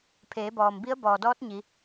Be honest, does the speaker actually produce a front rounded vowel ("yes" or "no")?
no